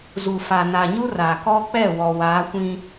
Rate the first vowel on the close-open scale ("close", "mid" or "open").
close